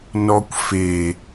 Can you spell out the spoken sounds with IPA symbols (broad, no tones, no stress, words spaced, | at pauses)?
nɔkʷ fe